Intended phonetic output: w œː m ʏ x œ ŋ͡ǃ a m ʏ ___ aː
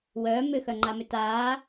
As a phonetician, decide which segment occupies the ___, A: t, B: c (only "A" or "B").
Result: A